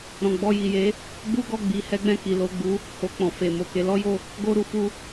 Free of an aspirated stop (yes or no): yes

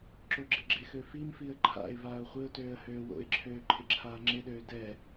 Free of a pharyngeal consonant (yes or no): yes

